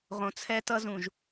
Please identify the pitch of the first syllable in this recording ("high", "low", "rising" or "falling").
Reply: low